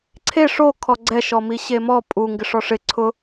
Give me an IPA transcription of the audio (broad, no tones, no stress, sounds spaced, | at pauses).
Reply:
ǀʰ e ʂ o kʰ ɔ ɡ͡ǀ ɛ ʃ ɔ m i ɕ e m ɔ pʼ u ŋ ɡ ɪ ʂ ɔ ʂ ɪ ǀʰ ʊ